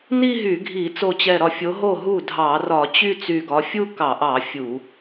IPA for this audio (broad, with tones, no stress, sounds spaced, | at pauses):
n i˥˧ ɦ y˧˩˧ ɡʱ i˧˩˧ t͡s o˧˩ t͡ɕ ɛ˧˩ ɾ ɒ˧˩ fʲ o˨˦ ɦ o˥˩ ɦ u˥˩ dʱ ɑ˧˩˧ r ɒ˧˩˧ t͡ɕ y˥˧ t͡s y˧˩ ɡ ɒ˨˦ fʲ u˥˧ k ɑ˧˩˧ ʔ ɑ˧˩˧ fʲ u˧˩˧